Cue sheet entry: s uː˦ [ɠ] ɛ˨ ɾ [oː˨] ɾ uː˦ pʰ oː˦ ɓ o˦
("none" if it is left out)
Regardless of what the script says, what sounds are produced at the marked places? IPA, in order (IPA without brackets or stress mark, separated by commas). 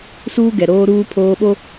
ɡ, oː˦